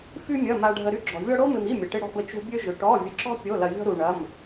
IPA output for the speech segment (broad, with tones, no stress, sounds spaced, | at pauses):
f y˥ mʲ ɐ˧˥˧ m a˥ ɖʱ ə˥ ɾ y˥ ɡ͡ǁ ɔ̤˧ vʲ ɔ˥ ɽ o˥ m ɪ˧ m i˧˥˧ mʲ ɐ˧ ʈ ɪ˥ ɽ ɔ̤˥ b ə˥ t͡ʃ ṳ˥ bʲ ø˥ ʒ ʏ˧ ʈ ɔ˧˥˧ vʲ ə˧ ǁ ɔ̤˥ pʲ o˧˥˧ l ɐ˧ vʲ ɔ̤˥ ɾ u˧ ɳ ɐ˧˥˧ m